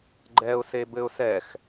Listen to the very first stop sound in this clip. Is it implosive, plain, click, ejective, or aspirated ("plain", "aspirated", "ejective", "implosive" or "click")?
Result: click